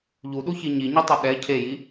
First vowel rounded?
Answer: yes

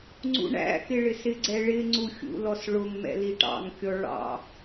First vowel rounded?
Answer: yes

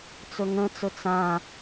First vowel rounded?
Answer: yes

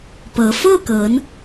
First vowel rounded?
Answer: no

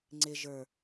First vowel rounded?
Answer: no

